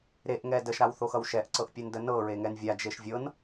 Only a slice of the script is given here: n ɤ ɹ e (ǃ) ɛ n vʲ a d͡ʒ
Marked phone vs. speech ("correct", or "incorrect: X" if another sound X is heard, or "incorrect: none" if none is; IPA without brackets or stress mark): incorrect: ŋ